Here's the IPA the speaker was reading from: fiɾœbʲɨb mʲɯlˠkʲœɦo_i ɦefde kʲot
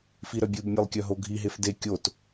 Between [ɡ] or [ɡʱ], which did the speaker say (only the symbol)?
ɡʱ